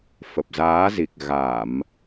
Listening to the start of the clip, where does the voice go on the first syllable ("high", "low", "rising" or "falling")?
low